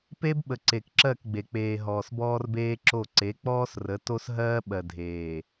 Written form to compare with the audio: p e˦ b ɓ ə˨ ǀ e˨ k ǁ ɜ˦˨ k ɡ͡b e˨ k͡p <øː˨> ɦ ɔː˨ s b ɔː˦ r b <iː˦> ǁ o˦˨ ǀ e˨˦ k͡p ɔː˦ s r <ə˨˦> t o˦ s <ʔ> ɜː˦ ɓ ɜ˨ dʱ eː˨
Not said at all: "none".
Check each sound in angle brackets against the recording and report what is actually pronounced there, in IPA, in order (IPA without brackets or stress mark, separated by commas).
eː˨, eː˦, ə˨˦, ɦ